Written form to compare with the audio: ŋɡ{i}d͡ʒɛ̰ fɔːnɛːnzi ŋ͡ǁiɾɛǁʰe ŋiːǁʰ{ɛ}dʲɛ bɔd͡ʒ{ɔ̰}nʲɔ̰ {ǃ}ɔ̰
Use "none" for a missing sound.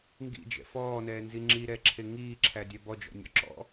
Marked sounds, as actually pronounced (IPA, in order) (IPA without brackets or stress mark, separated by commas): ḭ, æ, ɔ̰, ǁ